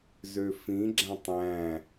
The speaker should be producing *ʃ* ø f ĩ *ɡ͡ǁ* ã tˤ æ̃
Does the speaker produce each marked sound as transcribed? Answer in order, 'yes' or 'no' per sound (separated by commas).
no, yes